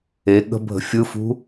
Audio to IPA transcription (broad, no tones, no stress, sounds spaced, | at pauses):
e ɠ ə̤ bʱ ə̤ fʲ ɯ f ṳ